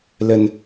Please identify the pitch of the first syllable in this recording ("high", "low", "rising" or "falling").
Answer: low